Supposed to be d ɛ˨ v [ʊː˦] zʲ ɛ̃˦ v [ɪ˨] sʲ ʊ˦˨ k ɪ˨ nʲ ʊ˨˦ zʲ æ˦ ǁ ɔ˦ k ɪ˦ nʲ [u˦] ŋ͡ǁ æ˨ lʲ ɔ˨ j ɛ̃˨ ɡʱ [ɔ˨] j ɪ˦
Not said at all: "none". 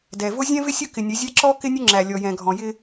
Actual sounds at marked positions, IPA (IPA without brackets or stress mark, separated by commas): ʊ˦, ɪ˦, ʊ˦, ɔ̃˨